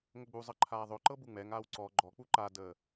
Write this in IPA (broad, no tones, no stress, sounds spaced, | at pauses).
ŋ ə ɡ͡b u zˤ ɤ ǃʰ aː ðˤ ɵ ǃ ɤ b u ŋ͡m ɛ ŋ aː w ǀ ɔ ɡ͡ǃ ɔ k͡p u ǃ a d əː